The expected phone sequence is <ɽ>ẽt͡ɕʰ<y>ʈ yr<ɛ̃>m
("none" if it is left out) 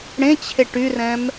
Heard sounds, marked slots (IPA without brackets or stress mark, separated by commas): ɽ, e, ɛ̃